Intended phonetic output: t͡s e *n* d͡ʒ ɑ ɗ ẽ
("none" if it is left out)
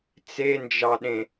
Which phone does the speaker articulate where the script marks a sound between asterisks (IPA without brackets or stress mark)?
n